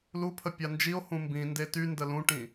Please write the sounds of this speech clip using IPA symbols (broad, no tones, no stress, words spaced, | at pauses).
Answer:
lupʰə pʲand͡ʒio̯ hũmbĩ ndety ndəlũʈĩ